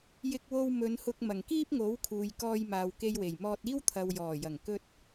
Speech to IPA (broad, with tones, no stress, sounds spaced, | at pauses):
j ɪ˧ k̚ w o˧ w m ɵ˨˧ n h ʊ˧ k̚ m ɐ˨˩ ŋ k iː˥ p̚ ŋ o˨˥ w kʰ uː˨ j k ɔː˧ j m aː˨ w k e˧ j w e˨˩ j m ɔː˧ t̚ iː˥ w t̪ʰ ɐ˨ w j ɔː˨˩ j ɐ˨˩ ŋ k ɵ˧ t̚